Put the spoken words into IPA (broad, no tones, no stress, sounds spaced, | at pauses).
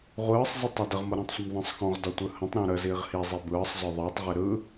ʁʷ ɯː sˤ z ɯ tˤ ʌ d ə ʁ m ɤ ɾ ə̃ː tˤ sʷ ə m ðˤ ə̃ː sˤ x ɔ̃ ʁ d ɔ tʷ ɯ h ə̃ tˤ ɾ ɔ̃ ɾ ə z iː ʁ h i zˤ i b ɯː sˤ z ɔ ðˤ iː tˤ ʁ i ɾ ɯ